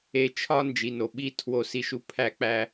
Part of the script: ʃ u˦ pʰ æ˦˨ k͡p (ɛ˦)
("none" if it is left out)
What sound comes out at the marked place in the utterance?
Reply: æ˦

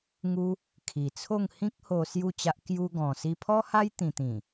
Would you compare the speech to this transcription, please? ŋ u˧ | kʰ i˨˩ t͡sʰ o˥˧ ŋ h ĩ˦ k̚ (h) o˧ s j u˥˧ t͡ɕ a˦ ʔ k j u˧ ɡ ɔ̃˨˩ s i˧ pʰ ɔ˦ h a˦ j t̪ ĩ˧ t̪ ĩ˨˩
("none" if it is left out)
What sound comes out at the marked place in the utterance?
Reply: h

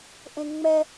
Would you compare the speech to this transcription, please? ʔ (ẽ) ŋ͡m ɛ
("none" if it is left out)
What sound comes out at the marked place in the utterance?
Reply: ẽ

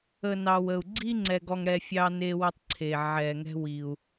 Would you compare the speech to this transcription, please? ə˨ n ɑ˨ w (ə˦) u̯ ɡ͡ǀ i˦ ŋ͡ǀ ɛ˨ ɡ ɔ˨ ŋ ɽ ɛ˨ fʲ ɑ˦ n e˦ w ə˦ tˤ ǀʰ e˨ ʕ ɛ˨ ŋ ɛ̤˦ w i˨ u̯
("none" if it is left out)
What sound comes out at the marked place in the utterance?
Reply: ə˨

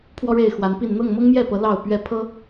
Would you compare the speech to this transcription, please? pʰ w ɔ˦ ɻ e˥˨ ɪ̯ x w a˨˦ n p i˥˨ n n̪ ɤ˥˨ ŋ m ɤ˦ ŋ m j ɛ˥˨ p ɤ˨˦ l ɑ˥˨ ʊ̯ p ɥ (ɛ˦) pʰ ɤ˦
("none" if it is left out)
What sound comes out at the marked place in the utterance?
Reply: ɛ˥˨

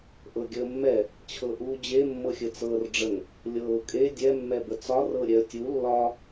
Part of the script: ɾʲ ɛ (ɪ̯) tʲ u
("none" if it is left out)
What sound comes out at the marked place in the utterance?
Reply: ə̯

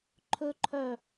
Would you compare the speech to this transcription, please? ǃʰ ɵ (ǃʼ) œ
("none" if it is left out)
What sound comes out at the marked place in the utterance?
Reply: ǃʰ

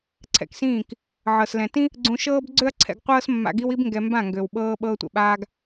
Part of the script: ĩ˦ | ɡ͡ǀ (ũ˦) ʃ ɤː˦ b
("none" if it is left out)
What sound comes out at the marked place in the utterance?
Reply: ũ˧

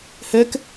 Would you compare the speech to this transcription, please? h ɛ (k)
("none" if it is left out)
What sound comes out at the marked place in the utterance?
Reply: k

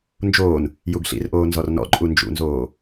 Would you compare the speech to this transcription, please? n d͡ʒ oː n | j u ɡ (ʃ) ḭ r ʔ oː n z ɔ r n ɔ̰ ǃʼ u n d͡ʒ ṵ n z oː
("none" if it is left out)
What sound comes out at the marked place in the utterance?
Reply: ɬ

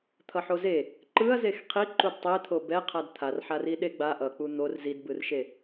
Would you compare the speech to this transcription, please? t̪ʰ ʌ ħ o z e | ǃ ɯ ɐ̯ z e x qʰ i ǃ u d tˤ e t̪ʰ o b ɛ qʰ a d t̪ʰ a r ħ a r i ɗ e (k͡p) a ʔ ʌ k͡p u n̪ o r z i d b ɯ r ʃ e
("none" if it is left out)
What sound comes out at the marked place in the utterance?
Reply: ɡ͡b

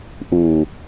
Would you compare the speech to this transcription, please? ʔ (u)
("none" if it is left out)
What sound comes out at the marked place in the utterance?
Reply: u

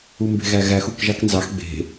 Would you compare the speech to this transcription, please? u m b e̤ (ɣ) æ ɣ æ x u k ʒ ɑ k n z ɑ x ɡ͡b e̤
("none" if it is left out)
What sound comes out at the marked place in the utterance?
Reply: ɣ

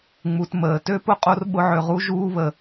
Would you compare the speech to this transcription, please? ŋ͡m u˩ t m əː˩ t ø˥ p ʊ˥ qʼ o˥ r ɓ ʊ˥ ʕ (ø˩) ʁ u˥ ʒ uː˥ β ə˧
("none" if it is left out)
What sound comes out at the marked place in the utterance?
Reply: ø˧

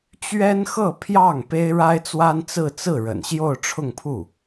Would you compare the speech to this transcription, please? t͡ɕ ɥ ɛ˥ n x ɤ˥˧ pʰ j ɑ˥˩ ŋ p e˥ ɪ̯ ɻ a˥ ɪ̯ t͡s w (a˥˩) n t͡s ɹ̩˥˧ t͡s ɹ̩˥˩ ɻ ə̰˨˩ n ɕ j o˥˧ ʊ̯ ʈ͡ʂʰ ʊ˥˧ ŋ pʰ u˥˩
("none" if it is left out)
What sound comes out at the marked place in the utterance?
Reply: a˥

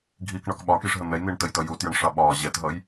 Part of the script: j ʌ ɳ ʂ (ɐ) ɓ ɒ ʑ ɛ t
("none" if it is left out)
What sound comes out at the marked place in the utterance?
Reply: ɑ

